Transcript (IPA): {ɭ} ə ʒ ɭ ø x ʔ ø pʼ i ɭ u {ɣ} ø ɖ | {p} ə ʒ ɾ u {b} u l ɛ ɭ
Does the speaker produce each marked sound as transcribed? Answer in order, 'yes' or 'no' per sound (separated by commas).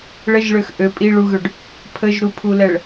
yes, yes, no, no